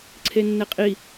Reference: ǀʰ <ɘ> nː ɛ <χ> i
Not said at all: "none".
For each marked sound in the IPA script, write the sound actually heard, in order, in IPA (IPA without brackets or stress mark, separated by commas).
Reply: e, qʼ